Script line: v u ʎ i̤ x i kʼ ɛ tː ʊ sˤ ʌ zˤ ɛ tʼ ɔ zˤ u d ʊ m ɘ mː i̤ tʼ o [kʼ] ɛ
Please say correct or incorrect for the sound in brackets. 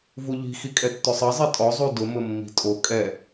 correct